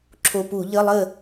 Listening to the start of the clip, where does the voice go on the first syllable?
low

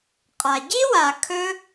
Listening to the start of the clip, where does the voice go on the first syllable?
low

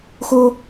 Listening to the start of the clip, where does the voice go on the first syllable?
high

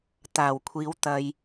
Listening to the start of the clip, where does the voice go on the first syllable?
low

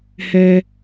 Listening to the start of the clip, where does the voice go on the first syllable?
low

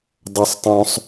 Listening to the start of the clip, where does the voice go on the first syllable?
high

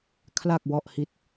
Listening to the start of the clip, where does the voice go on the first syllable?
low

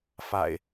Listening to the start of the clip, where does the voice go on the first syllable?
low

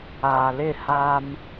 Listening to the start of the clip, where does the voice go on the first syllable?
low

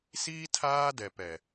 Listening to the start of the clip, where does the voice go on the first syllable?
high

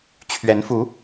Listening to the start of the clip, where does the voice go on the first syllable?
rising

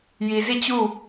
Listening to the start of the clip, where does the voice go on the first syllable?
low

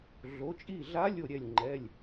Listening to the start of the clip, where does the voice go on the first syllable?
rising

